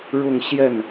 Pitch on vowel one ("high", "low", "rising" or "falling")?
falling